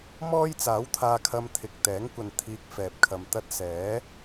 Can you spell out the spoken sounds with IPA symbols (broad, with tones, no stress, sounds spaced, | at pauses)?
m ɔː˥ j t͡s aː˨˥ w t̪ʰ aː˧ kʰ ɐ˧ m t̪ʰ ɪ˨ k̚ t̪ ɛː˨˥ ŋ kʷ ɐ˨ n t̪ʰ iː˧ k̚ f ɛː˨ p̚ kʰ ɐ˨ m t̪ ɐ˥ t̚ s ɛː˨˥